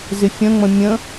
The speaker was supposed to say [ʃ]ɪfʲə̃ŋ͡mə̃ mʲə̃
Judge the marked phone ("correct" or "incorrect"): incorrect